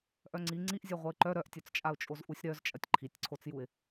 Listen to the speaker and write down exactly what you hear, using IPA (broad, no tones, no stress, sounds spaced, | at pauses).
ʔ œ ŋ͡ǀ i ŋ͡ǀ i ʔ zʲ a ʁʷ ɐ ɪ̯ ǃ œ ɾ œ ʔ tʲ œ t͡s t͡ʃʼ a ʊ̯ t͡ʃʼ o z ʔ u sʲ ɾ œ z t͡ʃʼ ɐ tʲ ǃʰ i tʲ ǀʰ o t͡s j u ɪ̯